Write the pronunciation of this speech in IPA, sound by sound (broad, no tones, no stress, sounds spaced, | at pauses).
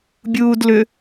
bʲ uː d l ʏ